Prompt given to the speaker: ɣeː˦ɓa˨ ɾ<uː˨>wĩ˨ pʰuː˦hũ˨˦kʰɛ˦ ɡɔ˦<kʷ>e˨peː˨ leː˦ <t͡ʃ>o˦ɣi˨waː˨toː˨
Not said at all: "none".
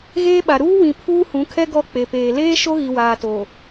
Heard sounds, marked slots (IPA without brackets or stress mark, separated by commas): uː˦, k͡p, ʃ